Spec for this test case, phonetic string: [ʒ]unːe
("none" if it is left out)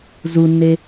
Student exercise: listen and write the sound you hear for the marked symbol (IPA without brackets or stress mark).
z